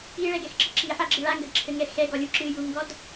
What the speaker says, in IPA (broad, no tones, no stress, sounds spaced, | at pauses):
i ɭ ɛ ɡ ɛ x ǁ ɨ ǁ i ħ a ɡ͡ǁ ɨ ɭ a ŋ ɡ ɐ d ǁʰ ɘ ŋ ɛ x ɛ ɡ ɔ lʲ u ǁ ɨ j u ŋ ɡ ɔ d